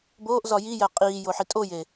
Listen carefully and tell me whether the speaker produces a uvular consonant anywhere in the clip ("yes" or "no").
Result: yes